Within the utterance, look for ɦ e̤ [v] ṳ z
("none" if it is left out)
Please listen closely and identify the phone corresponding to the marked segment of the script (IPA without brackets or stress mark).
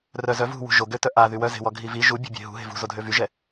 v